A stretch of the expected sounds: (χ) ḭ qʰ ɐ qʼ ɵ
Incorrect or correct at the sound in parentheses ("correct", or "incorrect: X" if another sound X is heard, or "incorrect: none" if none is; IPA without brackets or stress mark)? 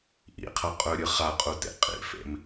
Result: incorrect: ʔ